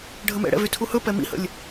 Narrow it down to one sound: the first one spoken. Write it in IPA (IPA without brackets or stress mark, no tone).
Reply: ɖʱ